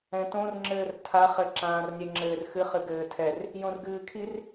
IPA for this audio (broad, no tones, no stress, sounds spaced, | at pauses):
ɛ̃ t õ r ŋ͡ǁ ɘː r tʰ a χ ɘ ǁ ãː r nʲ ɛ ŋ͡ǁ ɘː r x ɨ χ ɨ ɡ ɘː tʰ ɛ r | j õ r ɡ ɨː kʰ i r